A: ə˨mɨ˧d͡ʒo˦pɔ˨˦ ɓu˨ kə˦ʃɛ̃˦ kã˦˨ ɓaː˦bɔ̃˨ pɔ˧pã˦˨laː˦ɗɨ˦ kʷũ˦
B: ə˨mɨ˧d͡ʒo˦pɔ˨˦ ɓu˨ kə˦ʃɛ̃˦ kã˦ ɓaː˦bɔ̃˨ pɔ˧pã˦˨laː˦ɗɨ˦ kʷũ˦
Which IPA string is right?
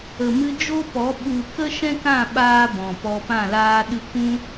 A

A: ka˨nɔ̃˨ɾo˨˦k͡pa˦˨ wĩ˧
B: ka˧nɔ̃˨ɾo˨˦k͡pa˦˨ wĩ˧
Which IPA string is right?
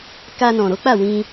B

